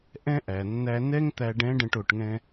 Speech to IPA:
ʔɛ̃˥ ʔæ˩nːæ˧nɛ˥ŋ t̪æ˧ɖɛ̃˧˥ɖə̃˧ʈ o˩˧ʈŋɛ̃˧

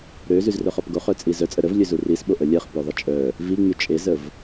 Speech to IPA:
ɾøzyzrœχɔp ɡoχœt͡sʼi zœt͡sʼə ɾəvlʲøzu risɓoʔə lʲɛχpoðˤə t͡ʃʼœ | viŋ͡my t͡ʃʼezəv

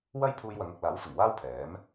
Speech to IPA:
wɐ˥jpʰuː˧jwɐ˨˧ŋ ɐ˨k̚laː˨˥w fɪ˨˩ŋwaː˥wpʰɛː˨˥m

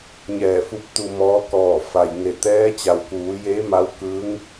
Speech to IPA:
ɲɛː˧˩fu˧˥p̚t̪u˧ mɔː˧˥kɔː˧˩fa˩jŋe˧˩ t̪ɛː˧˥t͡ɕa˩wkuː˩˧jeː˧˥ ma˧˥wkɯː˧˥ŋ

